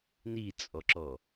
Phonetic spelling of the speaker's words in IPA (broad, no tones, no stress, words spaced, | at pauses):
nit͡sʼɔǁɔ